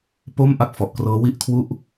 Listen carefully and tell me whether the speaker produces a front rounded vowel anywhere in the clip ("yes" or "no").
no